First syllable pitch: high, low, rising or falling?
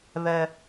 high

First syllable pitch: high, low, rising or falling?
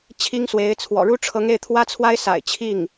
high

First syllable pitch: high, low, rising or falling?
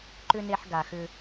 high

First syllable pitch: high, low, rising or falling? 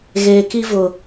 low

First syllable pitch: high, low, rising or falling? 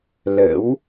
rising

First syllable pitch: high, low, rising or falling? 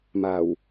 low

